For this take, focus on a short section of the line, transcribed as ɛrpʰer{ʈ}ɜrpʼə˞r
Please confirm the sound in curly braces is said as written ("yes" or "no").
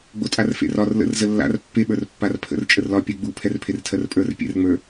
no